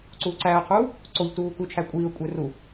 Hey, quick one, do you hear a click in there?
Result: yes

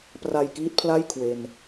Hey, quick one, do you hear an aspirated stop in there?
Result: yes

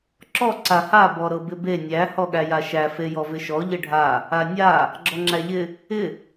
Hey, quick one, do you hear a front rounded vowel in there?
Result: no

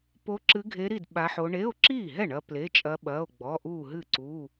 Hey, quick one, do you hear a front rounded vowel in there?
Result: no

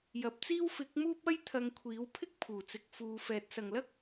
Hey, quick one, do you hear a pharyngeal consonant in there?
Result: no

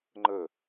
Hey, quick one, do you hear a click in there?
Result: yes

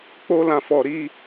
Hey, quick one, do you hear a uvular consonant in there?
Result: no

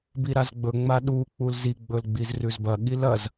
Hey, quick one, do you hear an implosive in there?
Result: yes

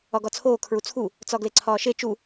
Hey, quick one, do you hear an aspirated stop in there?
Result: yes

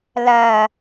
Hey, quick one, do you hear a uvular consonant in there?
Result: no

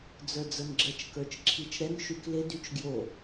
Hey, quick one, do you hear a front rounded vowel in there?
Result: yes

